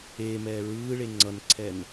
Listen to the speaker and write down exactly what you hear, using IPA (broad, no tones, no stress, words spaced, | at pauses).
eːmɛː ɹɯːɭe ŋ͡ǀʌnǀʰɛn